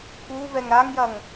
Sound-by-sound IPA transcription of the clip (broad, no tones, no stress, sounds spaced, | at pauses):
k u v ɛ ŋ ɾ a ŋ j ɐ ŋ